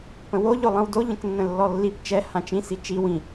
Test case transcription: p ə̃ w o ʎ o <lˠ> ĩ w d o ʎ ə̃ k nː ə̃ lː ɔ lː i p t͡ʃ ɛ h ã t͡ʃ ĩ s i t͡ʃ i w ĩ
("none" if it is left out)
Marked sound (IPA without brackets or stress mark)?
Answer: lˠ